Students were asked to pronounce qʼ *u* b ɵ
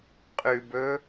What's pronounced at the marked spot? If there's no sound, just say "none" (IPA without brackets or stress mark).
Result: ʉ